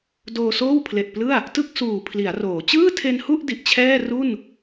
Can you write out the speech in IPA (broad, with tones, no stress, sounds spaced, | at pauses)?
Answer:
d oː˧ s oː˥˩ w pʰ l e˨˩ ʔ p l ɯ˥˩ a̯ | t ɯ˥˩ k̚ s uː˨˩ pʰ l i˩˦ a̯ r oː˩˦ t͡ɕ ɯː˥˩ tʰ e˧ n h u˥˩ ʔ d i˨˩ ʔ t͡ɕʰ ɛː˥˩ r u˥˩ n